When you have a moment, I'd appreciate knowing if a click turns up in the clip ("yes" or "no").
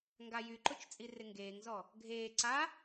yes